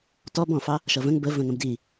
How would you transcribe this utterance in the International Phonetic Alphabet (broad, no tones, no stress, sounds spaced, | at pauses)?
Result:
t ɔ b ɔ̃ f ɑ | ʃ ʌ v ə̃ ŋ b ə v ə̃ ŋ ə̃ b d i